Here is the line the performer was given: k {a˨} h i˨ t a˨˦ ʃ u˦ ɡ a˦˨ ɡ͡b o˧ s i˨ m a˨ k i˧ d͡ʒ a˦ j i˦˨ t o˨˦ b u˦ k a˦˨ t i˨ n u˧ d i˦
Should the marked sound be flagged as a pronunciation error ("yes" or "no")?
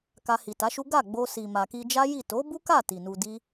yes